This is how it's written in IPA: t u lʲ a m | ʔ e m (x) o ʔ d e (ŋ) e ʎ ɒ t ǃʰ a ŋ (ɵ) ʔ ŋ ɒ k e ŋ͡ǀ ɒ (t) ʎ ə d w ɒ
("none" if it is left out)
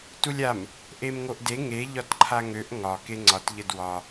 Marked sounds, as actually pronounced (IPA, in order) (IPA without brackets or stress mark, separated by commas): ŋ, ŋ, ø, t